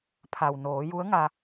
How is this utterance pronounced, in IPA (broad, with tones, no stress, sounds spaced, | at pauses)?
pʰ a˩ w n oː˩˧ j u˧˥ ə̯ ŋ a˧